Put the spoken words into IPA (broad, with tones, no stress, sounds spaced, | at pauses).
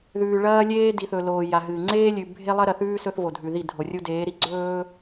ð ʉː˨ ɭ ɐː˦ lʲ eː˦ d i˨ θ ɵ˨ l oː˨ j a˨ ɦ ɨː˨ ŋ͡ǀ eː˦ lʲ ʉ˨ bʱ e˦ lˠ ɐ˦ ɾ ɐ˨ θ ʉː˦ s ɵ˦ θ v o˨ dʱ ʉ˨ ð i˦˨ dʱ o˨ rʲ u˦ d eː˨˦ ɾ i˨˦ ɡ͡ǀ ɵː˦